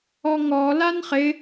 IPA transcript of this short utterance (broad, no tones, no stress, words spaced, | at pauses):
ɔŋɔ lanχɪ